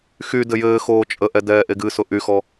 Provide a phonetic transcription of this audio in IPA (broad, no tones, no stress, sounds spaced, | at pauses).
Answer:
x y d ɘ j ɘː x oː t͡ʃʼ ə ʔ ɛ d ɛː ʔ e ɡ ɨ s ʊ ʔ y x ɔ